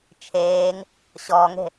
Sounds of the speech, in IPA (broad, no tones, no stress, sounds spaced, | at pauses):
t͡ʃʰ eː ŋ | ɕ ɔː ŋ e̤